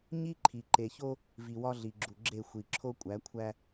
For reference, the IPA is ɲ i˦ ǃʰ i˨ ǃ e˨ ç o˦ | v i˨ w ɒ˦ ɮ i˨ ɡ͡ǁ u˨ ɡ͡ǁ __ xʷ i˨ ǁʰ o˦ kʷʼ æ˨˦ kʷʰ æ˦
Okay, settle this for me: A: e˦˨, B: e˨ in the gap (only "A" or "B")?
A